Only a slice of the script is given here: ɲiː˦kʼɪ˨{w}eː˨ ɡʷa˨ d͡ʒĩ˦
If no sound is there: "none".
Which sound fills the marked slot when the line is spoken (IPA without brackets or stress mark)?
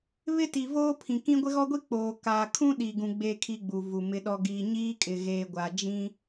ɣ